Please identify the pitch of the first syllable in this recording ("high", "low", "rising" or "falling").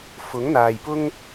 rising